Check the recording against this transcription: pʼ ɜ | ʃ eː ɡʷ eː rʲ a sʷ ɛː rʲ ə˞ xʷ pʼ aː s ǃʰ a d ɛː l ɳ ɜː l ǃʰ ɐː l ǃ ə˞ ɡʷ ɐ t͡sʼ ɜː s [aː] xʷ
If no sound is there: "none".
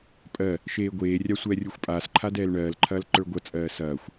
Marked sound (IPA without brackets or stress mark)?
ɐː